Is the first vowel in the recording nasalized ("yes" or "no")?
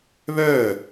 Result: no